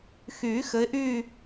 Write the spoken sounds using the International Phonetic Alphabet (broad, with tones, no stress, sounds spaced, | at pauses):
x y˨˩˦ x ɘ˨˦ ɪ̯ ʔ y˥˧